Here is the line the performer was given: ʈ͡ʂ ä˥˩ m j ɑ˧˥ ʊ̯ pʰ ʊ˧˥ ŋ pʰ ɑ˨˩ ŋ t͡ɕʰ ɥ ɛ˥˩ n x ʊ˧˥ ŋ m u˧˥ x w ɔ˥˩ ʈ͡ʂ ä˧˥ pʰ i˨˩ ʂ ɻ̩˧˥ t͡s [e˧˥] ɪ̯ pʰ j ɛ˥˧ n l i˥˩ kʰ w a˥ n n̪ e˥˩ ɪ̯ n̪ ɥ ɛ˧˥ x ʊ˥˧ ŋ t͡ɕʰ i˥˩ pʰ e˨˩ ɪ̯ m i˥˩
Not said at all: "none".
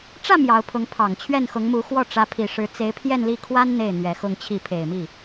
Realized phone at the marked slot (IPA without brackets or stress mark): e˧˥